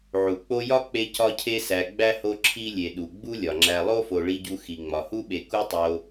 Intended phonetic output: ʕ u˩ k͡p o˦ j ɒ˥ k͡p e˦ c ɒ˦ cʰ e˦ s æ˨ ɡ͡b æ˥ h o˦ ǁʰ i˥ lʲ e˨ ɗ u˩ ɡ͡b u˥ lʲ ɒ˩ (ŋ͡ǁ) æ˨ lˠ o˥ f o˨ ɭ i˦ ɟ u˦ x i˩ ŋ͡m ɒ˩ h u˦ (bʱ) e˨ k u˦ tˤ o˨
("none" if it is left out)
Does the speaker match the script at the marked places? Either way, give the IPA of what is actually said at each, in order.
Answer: ŋ͡ǁ, ɓ

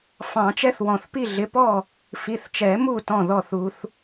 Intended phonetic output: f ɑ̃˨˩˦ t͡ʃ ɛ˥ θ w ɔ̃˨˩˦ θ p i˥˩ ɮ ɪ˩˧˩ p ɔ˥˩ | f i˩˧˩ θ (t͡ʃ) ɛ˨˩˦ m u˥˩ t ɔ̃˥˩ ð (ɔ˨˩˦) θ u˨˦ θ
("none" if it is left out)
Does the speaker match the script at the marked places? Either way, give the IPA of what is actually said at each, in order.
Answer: t͡ʃ, ɔ˥˩

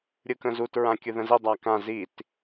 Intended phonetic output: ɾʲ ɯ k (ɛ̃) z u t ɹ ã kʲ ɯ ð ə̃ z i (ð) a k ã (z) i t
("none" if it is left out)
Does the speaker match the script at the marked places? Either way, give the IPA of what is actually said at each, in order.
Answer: ə̃, dˤ, z

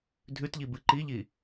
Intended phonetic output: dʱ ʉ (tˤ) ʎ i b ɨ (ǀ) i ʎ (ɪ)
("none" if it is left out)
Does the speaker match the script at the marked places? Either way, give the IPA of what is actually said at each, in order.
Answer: t, ǃ, i

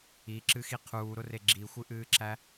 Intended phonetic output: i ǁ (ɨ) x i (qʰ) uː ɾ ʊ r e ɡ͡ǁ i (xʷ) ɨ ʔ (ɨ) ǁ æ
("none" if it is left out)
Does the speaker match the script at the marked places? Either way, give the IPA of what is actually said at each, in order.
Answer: ɨ, qʰ, xʷ, ɨː

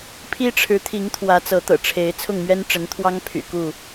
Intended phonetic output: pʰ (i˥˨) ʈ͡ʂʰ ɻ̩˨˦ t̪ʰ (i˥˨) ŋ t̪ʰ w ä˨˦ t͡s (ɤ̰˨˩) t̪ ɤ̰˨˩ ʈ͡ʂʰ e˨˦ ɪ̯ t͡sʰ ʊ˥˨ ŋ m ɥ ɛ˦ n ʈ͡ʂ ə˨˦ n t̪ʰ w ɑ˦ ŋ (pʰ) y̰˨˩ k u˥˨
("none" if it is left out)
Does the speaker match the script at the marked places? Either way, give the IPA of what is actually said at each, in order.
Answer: i˦, i˨˦, ɤ˨˦, pʰ

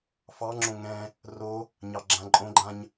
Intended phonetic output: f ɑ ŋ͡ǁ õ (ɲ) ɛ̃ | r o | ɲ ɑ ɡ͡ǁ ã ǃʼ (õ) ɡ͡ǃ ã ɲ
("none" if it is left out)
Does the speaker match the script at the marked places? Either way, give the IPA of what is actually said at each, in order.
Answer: ŋ, õ

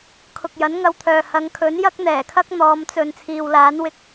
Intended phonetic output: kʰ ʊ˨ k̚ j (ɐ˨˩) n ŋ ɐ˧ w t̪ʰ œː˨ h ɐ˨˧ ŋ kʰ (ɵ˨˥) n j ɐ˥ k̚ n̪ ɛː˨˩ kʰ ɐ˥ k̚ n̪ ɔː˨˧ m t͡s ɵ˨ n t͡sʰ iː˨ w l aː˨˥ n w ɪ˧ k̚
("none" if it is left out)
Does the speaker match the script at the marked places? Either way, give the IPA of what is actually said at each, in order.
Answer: ɐ˨˥, ɵ˨˥

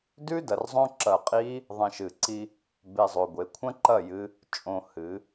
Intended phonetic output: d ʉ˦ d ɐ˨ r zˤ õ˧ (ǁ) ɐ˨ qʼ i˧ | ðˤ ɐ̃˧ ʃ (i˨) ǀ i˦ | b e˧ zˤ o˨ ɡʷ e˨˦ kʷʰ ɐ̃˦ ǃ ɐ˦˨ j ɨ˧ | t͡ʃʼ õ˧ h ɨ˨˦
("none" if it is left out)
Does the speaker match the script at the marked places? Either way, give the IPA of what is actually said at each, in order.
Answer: ǁ, ɨ˨

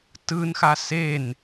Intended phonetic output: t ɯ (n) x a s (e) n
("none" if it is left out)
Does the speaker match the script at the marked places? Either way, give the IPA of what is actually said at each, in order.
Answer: n, e

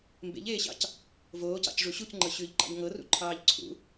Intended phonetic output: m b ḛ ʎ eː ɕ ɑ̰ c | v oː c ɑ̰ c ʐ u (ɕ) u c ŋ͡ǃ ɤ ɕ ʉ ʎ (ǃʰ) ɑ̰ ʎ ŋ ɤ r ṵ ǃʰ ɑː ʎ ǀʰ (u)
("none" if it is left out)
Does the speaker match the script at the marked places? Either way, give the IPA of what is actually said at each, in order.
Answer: ɕ, ǃ, ṵ

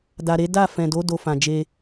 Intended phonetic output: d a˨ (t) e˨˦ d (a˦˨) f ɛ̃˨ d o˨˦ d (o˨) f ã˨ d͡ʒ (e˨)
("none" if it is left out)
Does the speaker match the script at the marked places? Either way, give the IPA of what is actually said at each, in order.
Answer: ɾ, a˦˨, o˧, e˧

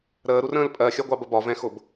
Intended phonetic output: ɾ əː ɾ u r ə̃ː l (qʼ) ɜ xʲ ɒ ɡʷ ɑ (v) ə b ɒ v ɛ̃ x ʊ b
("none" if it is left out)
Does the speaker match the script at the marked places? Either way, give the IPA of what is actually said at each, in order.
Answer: pʼ, b

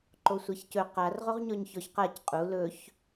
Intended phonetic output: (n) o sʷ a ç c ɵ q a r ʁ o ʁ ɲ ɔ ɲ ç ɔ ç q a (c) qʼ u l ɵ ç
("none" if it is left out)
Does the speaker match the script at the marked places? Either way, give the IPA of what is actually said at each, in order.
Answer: ǃ, c

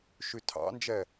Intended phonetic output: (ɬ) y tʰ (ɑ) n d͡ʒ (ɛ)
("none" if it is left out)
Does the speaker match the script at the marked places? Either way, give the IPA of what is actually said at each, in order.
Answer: ʃ, ɑ̰, ɛ

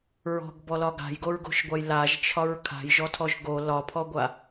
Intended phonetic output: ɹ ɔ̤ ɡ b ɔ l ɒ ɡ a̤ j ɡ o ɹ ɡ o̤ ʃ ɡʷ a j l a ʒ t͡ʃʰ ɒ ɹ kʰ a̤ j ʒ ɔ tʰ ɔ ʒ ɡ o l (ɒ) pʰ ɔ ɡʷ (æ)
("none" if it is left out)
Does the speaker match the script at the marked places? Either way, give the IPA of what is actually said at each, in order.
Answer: ɒ, a

